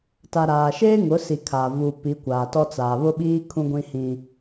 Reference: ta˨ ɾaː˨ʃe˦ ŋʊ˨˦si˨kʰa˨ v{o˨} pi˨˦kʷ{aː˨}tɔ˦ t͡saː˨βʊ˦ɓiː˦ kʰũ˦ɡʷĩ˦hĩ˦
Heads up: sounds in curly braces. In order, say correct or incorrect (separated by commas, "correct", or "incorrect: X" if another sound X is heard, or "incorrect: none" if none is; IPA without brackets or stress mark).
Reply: incorrect: u˨, correct